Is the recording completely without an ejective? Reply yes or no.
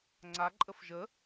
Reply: no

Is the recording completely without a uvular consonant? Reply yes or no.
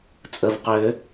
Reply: no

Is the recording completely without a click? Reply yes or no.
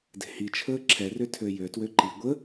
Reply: no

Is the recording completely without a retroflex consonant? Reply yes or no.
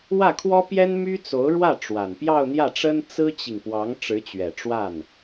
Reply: no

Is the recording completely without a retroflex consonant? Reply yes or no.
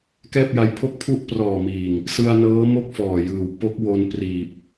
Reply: yes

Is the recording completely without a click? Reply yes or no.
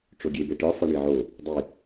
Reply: yes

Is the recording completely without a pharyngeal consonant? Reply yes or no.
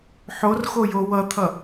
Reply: no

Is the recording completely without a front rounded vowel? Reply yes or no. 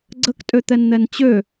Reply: no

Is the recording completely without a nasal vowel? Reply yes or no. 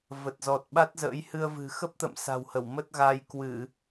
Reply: yes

